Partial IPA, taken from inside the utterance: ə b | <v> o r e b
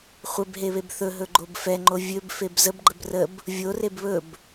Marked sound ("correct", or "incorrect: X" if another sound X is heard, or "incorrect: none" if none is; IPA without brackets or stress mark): incorrect: vʲ